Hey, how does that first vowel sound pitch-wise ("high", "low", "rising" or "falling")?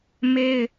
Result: high